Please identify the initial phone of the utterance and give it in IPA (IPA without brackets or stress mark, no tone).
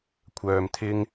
kʷʰ